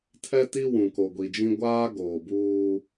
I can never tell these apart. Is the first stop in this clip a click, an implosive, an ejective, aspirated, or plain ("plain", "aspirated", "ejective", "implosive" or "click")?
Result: aspirated